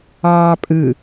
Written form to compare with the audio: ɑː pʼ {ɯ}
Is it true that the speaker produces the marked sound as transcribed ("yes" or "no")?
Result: yes